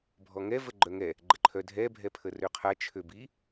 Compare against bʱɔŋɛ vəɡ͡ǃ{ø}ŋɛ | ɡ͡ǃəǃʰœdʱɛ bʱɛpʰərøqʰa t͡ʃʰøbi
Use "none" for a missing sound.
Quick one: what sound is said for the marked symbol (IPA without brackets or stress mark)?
œ